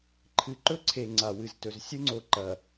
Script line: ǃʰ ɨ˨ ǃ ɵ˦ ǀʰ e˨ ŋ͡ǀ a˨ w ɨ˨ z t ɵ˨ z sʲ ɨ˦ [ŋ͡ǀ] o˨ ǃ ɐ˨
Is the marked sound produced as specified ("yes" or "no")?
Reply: yes